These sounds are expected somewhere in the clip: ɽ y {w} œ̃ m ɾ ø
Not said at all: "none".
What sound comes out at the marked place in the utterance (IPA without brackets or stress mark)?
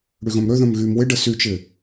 ɣ